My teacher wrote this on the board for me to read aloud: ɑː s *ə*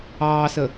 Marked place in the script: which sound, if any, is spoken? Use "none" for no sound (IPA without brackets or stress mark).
ə